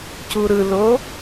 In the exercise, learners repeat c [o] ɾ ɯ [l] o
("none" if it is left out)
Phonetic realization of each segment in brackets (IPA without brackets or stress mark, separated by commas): u, l